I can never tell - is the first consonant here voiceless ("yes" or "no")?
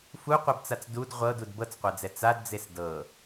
yes